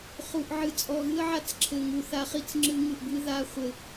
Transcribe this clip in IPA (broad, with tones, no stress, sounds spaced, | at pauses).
χ u˨ ʔ ʕ ɨ˨ t͡sʼ ɔ˨ ɣ ɨ˦ ə̯ ʕ a˦ t͡s ǁʰ ɘ˨ ŋ u˨ θ a˦ χ i˦ t͡s ŋ͡ǁ ɨ˦ ŋ ɨ˨ ʔ b ɨ˦ ð a˦ χʷ ɘ˦